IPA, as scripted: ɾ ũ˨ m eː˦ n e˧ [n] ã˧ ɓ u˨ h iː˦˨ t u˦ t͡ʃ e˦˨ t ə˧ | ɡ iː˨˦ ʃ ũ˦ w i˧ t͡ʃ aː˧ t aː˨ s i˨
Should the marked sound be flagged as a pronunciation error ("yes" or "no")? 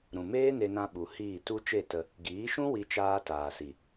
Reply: no